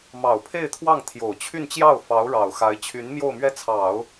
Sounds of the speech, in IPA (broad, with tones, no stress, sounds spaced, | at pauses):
m ɑ˨˩ ʊ̯ pʰ e˥˧ ɪ̯ t̪ʰ w ɑ˥˩ ŋ t̪ʰ j o˨˩ ʊ̯ t͡ɕʰ y˥˧ n t͡ɕ j ɑ˥˩ ʊ̯ f ɑ˧˥ ʊ̯ ɻ ɑ˨˩ ʊ̯ x a˧˥ ɪ̯ t͡ɕʰ y˧˥ n m j o˥˧ ʊ̯ m ɥ ɛ˥˩ t͡sʰ ɑ˨˩˦ ʊ̯